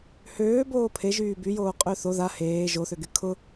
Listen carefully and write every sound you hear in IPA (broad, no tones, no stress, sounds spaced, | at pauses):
h øː b oː pʰ e ʒ yː b y j oː qʼ ø θ o ð a h eː ʒ o θ ø ɡ y kʰ ʊ